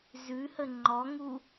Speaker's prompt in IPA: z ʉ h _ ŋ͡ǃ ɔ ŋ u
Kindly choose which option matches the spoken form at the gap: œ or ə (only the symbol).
ə